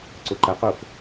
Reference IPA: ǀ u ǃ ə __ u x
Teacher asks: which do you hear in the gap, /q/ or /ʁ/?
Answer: q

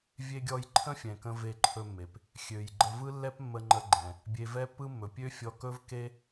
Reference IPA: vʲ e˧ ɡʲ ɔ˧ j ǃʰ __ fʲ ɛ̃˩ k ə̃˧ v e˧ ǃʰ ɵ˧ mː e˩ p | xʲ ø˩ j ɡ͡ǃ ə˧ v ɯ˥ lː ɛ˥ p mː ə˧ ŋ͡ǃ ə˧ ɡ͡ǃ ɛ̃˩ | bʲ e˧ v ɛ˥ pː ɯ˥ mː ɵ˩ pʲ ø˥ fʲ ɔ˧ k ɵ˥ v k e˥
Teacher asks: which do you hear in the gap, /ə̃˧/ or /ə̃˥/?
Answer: ə̃˥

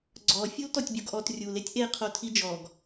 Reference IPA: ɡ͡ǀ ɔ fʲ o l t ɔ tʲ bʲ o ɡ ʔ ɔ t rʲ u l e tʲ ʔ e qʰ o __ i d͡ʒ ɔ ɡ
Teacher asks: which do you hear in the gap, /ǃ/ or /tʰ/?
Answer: tʰ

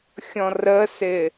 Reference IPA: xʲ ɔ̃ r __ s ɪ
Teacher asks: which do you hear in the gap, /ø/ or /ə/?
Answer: ə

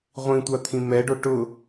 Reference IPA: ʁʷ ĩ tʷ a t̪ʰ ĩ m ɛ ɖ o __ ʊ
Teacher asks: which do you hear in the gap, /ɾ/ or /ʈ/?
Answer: ʈ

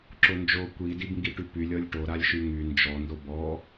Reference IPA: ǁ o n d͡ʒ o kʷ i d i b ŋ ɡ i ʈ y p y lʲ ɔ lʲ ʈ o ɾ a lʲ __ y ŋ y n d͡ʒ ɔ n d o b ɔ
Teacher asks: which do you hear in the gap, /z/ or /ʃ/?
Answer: ʃ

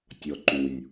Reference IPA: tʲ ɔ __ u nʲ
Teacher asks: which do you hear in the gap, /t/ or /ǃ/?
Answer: ǃ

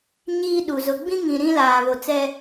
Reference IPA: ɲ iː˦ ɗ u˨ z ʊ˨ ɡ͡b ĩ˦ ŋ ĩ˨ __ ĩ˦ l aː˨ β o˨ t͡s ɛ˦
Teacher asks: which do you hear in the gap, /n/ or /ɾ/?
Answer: ɾ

